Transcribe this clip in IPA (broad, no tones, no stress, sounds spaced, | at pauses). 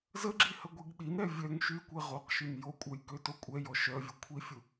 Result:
z ə ɡ͡ǁ i h ə ɡʷ i ɡ ɗ i n ɾ ɛ vʲ œ ŋ ʃ y kʷ e ʁ o q ʃ y n j o kʷʼ œ j k ø t o kʷʼ ɛ j ɔ ʃ œ vʲ ə kʷʰ i fʲ u